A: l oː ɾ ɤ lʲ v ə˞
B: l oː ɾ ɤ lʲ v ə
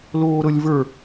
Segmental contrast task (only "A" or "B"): A